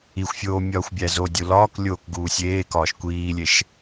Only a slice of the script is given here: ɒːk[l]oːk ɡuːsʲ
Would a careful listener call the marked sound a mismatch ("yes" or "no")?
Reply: yes